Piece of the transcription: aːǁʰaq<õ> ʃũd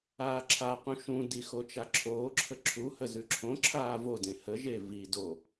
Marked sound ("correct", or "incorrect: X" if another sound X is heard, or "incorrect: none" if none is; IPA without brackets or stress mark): incorrect: ũ